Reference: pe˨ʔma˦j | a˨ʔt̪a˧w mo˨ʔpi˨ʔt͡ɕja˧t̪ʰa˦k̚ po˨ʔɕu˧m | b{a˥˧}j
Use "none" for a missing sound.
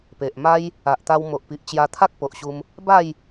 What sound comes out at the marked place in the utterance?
a˥˧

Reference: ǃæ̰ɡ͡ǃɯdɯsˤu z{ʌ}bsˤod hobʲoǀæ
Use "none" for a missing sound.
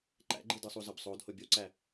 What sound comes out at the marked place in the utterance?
ə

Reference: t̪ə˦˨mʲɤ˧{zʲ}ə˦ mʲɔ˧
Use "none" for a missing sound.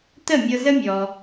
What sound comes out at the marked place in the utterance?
z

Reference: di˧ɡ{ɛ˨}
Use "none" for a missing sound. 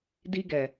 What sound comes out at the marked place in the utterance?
ɛ˨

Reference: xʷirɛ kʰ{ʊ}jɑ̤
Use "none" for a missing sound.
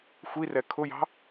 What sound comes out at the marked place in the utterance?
ʊ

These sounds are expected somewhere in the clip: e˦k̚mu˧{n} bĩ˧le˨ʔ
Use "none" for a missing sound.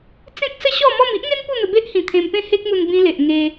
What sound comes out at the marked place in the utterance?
n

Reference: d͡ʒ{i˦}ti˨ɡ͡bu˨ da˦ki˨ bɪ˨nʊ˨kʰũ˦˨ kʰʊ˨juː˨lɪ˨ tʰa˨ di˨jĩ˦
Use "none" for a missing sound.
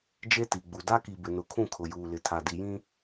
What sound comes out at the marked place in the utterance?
e˦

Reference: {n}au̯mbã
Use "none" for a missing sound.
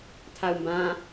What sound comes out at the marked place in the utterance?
tʰ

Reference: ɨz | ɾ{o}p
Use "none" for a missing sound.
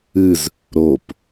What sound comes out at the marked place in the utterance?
o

